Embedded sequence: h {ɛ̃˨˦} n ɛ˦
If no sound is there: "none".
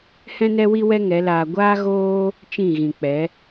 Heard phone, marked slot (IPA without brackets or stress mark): ɛ̃˦